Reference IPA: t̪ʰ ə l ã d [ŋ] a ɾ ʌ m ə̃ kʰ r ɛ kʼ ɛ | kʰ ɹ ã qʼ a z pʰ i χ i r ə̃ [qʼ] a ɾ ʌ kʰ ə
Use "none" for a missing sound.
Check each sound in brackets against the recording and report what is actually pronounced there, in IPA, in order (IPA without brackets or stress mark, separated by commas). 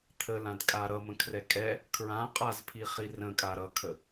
kʼ, kʼ